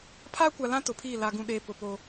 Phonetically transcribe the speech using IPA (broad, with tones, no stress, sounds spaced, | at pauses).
pʰ aː˦ kʷ a˨ l ã˦ t ʊ˨ pʰ iː˦˨ l a˨ ɡ ũ˨ ɗ eː˨ p ʊ˨ p o˦